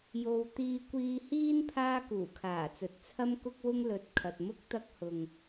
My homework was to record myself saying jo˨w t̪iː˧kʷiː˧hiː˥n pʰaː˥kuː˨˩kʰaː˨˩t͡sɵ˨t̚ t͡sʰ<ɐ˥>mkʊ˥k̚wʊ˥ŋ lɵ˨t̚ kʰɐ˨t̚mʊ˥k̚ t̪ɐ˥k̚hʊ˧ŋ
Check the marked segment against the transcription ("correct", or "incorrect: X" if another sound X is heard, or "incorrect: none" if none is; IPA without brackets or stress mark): correct